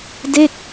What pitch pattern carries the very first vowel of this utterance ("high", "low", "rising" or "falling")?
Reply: falling